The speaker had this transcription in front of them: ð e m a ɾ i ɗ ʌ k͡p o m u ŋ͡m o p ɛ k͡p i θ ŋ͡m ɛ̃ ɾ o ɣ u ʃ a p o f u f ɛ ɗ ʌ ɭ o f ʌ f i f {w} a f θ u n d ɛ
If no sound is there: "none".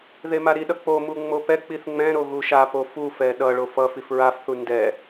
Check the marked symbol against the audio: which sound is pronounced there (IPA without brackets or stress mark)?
ɹ